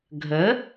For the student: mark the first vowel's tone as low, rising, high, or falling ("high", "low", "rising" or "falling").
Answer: rising